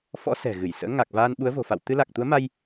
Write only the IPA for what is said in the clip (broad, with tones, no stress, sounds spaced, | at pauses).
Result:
f ɔ̰˧˥ s ɛ̤˨˩ ɣ ɨ˧˩ j s ə̰ː˧˥ ŋ a˨˩ k̚ v aː˧ n ɓ u˨˦ ə̯ v o̤˨˩ f a̰˧˨ w t̪ ɨ˧ l a˨˩ k̚ t̪ u˨˦ ə̯ m a˧ j